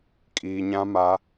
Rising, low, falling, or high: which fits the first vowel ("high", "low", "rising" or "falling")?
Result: low